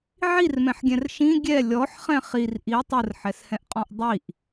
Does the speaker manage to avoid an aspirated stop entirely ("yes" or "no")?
yes